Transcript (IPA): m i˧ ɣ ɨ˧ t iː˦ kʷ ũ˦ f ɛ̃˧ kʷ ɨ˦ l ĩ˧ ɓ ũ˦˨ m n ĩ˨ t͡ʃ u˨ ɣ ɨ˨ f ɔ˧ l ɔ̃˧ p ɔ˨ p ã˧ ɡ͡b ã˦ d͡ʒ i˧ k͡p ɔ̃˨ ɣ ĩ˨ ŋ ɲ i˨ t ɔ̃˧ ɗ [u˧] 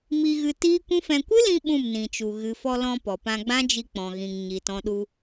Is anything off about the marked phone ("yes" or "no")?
no